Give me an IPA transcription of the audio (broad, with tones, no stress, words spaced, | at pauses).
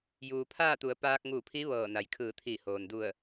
juː˩pʰaː˥˨t̪u˩˧ə̯ paː˧k̚ŋu˧˩pʰi˧˥ ʋɤː˧˩na˩j kʰɯː˧˩t̪ʰiː˧˩hoː˩ndu˧˩ə̯